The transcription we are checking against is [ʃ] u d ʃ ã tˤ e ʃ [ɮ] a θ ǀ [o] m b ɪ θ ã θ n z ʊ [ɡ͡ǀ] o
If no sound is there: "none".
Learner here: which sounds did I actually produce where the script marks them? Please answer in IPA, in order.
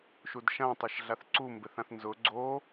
ʃ, ɮ, u, ɡ͡ǀ

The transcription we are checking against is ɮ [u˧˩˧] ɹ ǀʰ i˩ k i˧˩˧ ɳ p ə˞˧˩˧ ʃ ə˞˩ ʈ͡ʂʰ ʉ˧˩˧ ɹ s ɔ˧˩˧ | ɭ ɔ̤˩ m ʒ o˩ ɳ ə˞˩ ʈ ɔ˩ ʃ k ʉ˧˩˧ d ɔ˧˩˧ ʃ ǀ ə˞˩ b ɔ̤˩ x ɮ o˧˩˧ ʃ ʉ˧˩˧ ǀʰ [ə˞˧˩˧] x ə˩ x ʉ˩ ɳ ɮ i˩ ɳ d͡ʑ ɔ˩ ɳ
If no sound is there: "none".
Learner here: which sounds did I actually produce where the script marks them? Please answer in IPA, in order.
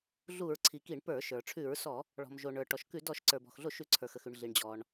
u˧˩˧, ə˞˩

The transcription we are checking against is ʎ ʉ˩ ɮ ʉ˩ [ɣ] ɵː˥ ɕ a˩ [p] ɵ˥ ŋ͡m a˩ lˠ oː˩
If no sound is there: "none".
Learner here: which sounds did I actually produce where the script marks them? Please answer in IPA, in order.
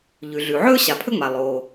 ʕ, pʰ

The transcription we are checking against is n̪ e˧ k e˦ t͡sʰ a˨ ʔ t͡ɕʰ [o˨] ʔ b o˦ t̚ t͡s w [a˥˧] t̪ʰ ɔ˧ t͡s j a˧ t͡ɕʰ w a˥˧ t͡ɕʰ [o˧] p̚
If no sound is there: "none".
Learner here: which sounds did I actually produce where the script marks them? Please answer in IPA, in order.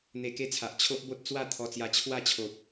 o˦, a˥˧, o˨

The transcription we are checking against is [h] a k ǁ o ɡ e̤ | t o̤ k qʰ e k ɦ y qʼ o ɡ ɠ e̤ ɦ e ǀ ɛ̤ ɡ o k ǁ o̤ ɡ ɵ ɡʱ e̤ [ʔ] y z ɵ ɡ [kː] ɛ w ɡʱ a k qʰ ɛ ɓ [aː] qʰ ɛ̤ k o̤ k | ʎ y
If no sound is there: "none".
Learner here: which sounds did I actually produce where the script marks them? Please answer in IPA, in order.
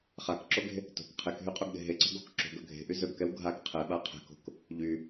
χ, ʔ, k, a

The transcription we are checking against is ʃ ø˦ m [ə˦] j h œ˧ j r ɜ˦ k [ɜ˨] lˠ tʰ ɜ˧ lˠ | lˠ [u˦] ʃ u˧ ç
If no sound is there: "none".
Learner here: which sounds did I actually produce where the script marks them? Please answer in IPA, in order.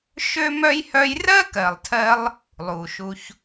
œ˦, ɜ˨, u˨

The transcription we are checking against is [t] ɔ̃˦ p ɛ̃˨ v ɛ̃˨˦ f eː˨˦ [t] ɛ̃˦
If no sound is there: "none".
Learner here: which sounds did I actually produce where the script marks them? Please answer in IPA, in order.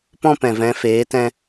p, t

